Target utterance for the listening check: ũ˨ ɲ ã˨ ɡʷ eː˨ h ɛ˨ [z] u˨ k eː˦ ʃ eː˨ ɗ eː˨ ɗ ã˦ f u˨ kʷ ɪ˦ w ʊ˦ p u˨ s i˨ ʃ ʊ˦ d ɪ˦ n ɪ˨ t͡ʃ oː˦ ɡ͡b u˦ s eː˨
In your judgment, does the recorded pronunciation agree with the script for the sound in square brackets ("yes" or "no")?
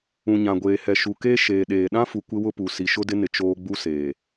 no